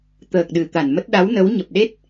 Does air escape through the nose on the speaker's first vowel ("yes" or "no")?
no